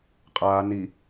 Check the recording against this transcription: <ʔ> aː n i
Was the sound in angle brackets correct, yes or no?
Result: no